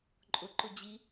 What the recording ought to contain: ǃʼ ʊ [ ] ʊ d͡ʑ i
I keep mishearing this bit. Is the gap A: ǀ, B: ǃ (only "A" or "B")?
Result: B